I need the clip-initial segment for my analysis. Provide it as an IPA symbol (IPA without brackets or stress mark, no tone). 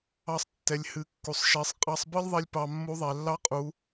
ɑ